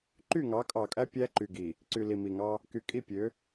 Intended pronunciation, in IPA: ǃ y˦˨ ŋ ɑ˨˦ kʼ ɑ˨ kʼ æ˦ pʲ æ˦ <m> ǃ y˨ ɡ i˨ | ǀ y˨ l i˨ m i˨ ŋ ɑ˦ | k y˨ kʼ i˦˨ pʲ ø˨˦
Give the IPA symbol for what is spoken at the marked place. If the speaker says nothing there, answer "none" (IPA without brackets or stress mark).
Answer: none